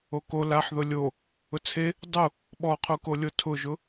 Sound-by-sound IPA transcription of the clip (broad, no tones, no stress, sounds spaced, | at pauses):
o k o l a ħ ð ʊ lʲ o | ʊ t͡sʰ e | dˤ u | ɓ ɔ qʰ u k o lʲ o tʰ ʊ ʒ ʊ